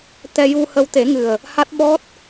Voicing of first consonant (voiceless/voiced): voiceless